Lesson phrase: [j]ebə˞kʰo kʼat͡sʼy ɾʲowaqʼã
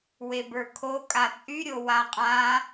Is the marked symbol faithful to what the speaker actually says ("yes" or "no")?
no